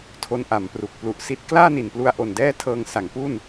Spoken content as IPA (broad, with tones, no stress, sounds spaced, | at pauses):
tʰ o˦˥ n ʔ a˩˦ m p r u˨˩ k̚ p l u˨˩ ʔ s i˦˥ t̚ k l aː˥˩ n i˨˩ n p l u˧ a̯ ʔ o˨˩ n d ɛː˥˩ tʰ ɤː˧ ŋ s a˩˦ ŋ p u˥˩ n